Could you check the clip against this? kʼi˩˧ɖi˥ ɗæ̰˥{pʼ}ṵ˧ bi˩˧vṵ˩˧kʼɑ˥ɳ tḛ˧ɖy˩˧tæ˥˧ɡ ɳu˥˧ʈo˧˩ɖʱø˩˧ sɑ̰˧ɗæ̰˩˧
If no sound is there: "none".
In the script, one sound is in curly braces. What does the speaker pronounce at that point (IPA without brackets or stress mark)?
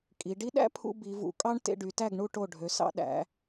pʰ